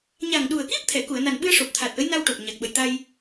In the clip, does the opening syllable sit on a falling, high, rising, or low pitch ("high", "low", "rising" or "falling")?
low